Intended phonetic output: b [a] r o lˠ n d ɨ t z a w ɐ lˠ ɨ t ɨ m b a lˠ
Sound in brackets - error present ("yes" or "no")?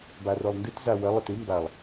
no